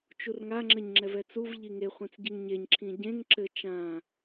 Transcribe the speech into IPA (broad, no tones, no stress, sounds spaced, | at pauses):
t͡ʃ u r ŋ a ŋ͡ǁ ɘ ɲ ŋ͡ǁ ɛ v ɛ t͡s u v ʎ i ŋ e χʷ ĩ t͡s ɟ i ŋ ɲ e ɲ ǁʰ ĩ ɟ ẽ ŋ ǁ ɘ t͡ʃ ã